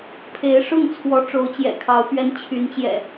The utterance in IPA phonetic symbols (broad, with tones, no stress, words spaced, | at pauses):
pʰe˨˦ɪ̯ʂʊ˥˨ŋt͡sʰwɔ˨˦ ʈ͡ʂo˨˦ʊ̯t͡ɕjɛ̰˨˩kʰɑ˨˦ʊ̯pɥɛ˨˦n t͡ɕʰy˨˦nt͡ɕjɛ̰˨˩